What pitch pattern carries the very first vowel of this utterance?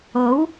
rising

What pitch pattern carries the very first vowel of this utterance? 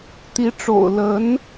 rising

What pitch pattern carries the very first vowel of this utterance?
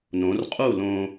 rising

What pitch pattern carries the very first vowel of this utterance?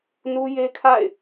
high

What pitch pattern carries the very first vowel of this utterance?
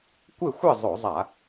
falling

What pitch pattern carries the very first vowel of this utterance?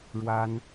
high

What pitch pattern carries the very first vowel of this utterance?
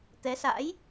rising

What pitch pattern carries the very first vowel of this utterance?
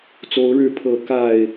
rising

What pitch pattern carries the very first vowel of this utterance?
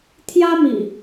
high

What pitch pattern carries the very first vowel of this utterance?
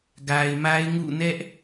low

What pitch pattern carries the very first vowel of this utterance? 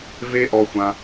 high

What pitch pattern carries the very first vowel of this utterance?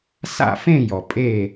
falling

